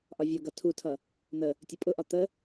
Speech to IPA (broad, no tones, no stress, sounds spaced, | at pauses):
ʔ ɒ vʲ ʌ ɡ ʌ tʰ u tʰ ʌ | n̪ ə | tʲ ʌ pʼ ʊ ʔ ɒ t̪ ə